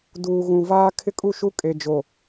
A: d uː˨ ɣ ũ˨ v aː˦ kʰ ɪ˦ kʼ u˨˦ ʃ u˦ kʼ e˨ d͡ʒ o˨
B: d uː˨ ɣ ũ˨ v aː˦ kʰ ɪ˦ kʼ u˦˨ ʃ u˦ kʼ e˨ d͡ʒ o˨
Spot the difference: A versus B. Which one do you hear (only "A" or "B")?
B